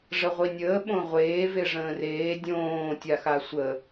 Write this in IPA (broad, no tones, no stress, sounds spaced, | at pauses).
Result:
ʐ ə ʁʷ i nʲ əː ɓ õ ʁʷ eː v e ʐ ə̃ː r eː dʲ õː tʲ a x a sʷ ə